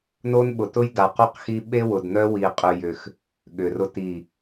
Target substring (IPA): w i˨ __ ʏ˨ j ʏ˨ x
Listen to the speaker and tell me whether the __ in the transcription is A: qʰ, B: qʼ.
B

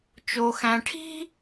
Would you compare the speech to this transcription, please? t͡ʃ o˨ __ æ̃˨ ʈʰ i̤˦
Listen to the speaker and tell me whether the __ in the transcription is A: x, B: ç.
A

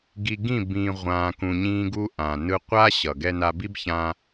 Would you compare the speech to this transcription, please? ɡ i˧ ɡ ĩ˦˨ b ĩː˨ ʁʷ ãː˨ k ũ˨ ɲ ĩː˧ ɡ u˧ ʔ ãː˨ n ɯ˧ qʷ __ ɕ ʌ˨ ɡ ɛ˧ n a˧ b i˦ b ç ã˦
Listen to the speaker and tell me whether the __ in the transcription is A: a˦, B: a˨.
A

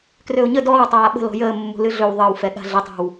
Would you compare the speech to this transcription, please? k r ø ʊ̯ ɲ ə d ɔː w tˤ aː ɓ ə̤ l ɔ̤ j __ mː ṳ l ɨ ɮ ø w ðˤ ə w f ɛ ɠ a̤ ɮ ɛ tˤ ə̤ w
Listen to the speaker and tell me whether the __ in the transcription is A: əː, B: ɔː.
A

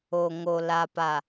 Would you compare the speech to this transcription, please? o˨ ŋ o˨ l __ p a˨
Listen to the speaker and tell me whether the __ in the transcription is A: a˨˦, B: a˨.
B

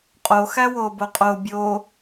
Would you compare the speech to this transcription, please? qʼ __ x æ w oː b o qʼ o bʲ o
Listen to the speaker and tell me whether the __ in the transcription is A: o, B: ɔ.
A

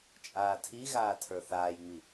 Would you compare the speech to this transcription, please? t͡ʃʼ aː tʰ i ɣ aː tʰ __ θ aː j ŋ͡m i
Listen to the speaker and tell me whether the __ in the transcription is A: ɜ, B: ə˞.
B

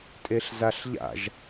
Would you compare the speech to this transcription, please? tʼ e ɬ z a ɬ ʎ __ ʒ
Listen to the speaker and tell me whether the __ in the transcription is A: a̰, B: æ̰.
A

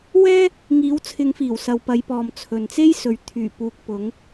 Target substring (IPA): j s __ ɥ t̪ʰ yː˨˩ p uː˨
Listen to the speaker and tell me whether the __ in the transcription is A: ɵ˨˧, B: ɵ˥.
A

